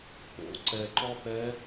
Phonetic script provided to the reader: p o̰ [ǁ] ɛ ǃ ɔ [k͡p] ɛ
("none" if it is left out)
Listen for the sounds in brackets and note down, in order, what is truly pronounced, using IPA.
ǀ, p

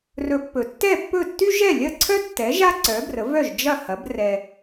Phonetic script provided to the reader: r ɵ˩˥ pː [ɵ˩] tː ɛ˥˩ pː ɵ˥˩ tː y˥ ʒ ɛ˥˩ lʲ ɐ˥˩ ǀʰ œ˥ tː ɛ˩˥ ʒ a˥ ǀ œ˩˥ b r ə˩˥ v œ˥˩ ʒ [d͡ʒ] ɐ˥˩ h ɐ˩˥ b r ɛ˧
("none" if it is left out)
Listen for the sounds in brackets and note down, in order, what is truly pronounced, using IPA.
ɵ˩, d͡ʒ

